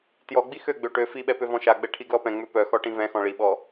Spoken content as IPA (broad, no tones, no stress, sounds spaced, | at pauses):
t j ɔ ɡ͡b i x ø ɡ͡b ø ʈ ø f i ɓ ɛ p ø v ɔ̃ ʃ a ɡ͡b ɛ ʈʰ i ɡ l ɔ p ɛ̃ ŋ͡m ø p œ x ɔ ʈ ĩ v ɛ̃ x ɔ̃ ɭ i ɓ ɔ